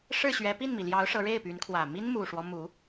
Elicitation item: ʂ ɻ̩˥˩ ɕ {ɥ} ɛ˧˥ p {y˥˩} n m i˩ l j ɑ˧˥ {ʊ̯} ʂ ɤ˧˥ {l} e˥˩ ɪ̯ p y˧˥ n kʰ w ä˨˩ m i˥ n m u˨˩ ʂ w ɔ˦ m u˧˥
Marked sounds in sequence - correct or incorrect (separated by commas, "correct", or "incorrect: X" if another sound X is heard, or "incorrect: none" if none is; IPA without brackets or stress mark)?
correct, incorrect: i˥˩, correct, incorrect: ɻ